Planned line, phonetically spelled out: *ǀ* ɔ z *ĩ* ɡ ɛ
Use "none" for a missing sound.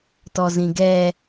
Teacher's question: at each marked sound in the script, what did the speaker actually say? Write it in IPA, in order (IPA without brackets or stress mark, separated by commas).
t, ĩ